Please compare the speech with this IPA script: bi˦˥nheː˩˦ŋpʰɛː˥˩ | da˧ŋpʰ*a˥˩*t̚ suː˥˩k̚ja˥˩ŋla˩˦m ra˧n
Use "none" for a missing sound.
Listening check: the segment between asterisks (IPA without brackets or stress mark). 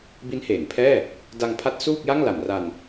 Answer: a˦˥